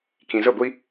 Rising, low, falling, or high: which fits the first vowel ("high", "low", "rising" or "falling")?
low